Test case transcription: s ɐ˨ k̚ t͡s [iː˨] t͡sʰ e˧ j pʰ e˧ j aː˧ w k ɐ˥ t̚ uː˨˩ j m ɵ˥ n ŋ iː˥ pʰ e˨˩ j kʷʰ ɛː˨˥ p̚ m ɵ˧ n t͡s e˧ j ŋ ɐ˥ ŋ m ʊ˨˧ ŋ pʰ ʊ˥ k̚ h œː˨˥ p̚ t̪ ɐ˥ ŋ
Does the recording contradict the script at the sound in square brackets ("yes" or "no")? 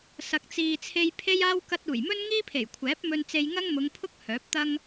no